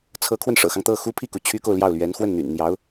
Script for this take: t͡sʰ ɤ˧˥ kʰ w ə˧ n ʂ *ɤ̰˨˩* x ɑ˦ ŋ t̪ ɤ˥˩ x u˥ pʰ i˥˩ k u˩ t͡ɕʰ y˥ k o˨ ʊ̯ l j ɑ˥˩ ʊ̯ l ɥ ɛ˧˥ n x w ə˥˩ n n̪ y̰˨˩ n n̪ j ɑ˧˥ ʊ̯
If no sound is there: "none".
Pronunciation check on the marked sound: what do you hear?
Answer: ɤ̰˨˩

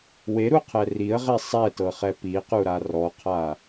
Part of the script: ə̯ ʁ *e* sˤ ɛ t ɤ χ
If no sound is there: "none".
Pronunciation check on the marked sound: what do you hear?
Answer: e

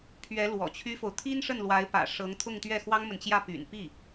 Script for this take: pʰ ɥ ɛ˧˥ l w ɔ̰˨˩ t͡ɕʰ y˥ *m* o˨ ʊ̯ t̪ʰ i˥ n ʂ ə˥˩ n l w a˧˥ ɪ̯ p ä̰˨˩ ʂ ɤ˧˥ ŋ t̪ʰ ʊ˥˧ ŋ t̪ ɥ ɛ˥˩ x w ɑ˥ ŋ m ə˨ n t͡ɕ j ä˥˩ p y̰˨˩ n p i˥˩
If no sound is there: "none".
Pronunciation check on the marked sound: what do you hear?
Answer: f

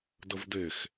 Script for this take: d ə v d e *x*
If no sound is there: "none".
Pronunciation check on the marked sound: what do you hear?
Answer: x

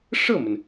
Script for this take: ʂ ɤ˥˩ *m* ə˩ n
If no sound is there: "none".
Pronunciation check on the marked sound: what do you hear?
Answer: m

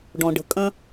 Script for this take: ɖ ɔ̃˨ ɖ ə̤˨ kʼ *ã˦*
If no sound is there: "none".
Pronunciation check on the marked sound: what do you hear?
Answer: ɐ̃˦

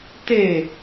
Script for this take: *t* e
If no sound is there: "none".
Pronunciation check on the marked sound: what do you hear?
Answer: t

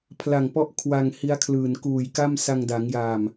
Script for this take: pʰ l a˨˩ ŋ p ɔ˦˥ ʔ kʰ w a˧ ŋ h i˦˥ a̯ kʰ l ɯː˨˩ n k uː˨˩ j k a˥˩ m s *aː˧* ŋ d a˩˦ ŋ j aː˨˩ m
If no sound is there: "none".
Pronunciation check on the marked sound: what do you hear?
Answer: a˧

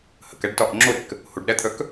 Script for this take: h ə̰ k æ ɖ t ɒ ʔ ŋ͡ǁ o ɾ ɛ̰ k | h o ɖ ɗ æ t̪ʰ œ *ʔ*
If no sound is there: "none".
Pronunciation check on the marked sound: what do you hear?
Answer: k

